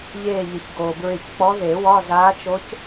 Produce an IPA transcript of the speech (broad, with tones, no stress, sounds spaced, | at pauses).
ʎ eː˧˩ ʎ ɪ˩ ç ɡ oː˩ b ɹ ɪ˧˩ ç k͡p ɔ˧˥ ð e˨˩˦ w ɒ˧˥˧ z aː˧˥ t͡ʃ o˧˥ c